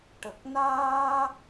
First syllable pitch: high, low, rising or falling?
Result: low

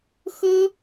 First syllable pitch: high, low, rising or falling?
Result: high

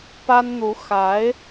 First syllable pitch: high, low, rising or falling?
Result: high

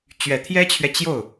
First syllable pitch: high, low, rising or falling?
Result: low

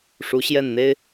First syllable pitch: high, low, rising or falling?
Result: rising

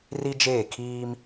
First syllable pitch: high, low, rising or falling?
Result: high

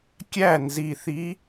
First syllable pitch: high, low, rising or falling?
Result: falling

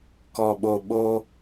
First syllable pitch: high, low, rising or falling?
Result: low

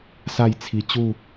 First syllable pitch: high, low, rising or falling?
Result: falling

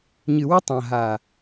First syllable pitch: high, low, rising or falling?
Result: low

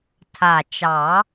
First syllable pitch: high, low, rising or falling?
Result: low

